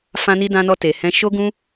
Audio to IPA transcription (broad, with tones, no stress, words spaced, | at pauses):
fã˧ni˧dã˧nɔ˧ te˨hɛ̃˧ ʃo˦ɡũ˦